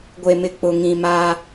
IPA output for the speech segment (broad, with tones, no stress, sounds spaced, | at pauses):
ɡʷ e˨ m ɪ˨ k͡p ʊ˨ ŋ ĩ˨ m a˦